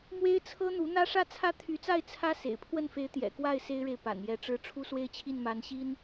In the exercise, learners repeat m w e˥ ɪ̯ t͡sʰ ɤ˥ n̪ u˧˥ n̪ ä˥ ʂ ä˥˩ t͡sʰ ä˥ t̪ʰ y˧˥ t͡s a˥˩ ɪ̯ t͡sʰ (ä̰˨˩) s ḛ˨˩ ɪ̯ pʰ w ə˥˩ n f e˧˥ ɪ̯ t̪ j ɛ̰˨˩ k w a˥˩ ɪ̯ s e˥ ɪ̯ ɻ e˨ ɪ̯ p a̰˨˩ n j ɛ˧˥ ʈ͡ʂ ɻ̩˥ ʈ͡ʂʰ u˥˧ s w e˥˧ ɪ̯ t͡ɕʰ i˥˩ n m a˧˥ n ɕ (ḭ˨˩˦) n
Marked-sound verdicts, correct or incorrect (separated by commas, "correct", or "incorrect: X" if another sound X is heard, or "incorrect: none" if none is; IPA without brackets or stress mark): incorrect: ä˥, incorrect: i˥